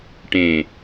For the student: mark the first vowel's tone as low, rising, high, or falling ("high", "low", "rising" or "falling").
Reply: low